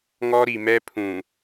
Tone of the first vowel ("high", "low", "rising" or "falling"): high